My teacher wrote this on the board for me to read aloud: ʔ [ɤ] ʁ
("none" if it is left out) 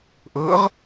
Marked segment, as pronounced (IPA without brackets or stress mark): ɤ